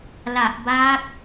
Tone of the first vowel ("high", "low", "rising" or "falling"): low